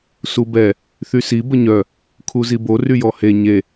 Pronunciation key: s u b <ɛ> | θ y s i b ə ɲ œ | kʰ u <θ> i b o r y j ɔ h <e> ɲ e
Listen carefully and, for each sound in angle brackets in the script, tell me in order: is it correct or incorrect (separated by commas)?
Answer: correct, incorrect, correct